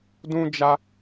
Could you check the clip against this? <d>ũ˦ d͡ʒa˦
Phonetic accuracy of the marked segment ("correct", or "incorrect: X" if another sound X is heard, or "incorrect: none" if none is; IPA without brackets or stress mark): correct